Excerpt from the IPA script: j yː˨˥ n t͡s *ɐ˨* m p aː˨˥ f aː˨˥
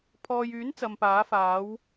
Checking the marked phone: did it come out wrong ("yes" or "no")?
no